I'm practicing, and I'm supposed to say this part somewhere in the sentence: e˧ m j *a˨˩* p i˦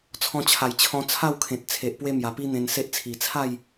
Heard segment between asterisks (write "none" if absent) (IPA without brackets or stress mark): a˨˩